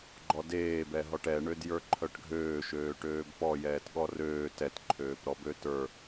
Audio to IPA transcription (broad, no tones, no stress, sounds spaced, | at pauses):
ɡ͡ǃ ɔ d eː b ɛ ɦ ɔ ʈ ɛ ɳ ø d j ə˞ ǃʰ œ ʈ ɡʱ øː ʃ øː ʈ øː b p ɔ j ɛː t ɠ ɔ r øː t ɛ t ǃʰ øː p ɾ ɔ b ø t ə˞